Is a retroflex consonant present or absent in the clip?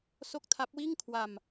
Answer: absent